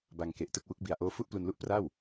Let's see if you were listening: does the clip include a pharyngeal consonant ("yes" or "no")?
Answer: no